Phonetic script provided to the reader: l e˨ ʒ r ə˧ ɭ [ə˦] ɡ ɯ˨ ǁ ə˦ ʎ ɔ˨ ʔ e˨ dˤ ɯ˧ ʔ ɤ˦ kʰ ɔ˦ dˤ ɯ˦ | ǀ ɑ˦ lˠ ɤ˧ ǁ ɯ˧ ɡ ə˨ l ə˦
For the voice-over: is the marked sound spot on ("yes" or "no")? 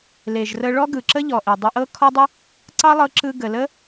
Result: no